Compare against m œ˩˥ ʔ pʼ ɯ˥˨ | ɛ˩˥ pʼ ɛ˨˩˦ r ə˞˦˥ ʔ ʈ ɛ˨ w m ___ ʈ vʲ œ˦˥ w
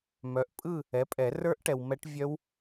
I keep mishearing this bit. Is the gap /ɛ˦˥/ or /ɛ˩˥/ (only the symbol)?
ɛ˦˥